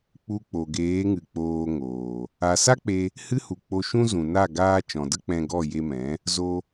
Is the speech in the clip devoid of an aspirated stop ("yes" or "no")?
yes